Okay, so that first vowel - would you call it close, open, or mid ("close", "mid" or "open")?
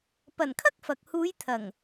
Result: open